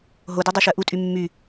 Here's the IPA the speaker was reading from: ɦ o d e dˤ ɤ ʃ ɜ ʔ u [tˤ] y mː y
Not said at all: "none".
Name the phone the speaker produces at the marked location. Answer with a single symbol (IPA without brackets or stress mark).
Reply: tʼ